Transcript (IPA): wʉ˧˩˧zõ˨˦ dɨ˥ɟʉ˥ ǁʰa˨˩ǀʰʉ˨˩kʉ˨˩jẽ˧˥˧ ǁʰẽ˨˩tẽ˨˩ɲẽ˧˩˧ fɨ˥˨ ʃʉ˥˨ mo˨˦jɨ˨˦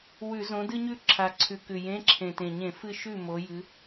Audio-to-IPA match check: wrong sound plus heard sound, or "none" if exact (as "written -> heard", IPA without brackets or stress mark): ɟ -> ɲ